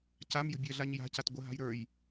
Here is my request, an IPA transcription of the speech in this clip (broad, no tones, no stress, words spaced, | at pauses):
camjə̤bʲɜɮaɲ ja̤cat ɡʷəɦa̤j ɾə˞j